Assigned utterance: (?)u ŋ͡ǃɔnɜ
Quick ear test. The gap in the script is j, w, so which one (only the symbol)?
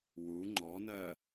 w